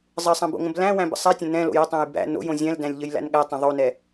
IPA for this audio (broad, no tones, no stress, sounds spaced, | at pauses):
zˤ ɘ sˤ ɐ̃ b o̰ ŋ ə̃ b l æ̃ w æ̃ b ə̰ sˤ ɛ tʲ ɐ̃ n ɛ̃ l o̰ j ə tˤ æ̃ j b æ̰ n o̰ j õ zʲ ɛ̃ l d æ̃ lʲ ʎ ə j l æ̰ n ɠ æ tˤ ɐ̃ ðˤ o n ɛ